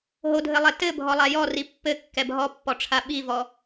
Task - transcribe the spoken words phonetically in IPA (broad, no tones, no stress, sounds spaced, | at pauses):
ɦ o dʱ ɘ lˠ ɛ t ɘ bʱ ɔ lˠ a j ɔ r i pː ɘ kː ɛ bʱ ɔ pː ɔ ʈ͡ʂʰ a ɓ i v ɔ